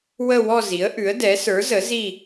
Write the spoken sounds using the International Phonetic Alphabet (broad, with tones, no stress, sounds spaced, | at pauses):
w ə˦˨ w ɔ˦˨ z i˩˥ ə̯ ʔ ʉ˩˥ ə̯ d ɛ˩˥ s ə˞˩˥ z ə˩˥ z i˦˨